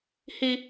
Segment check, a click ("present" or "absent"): absent